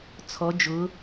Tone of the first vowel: rising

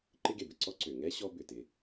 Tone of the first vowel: high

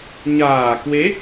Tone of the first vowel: low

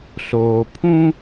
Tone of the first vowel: low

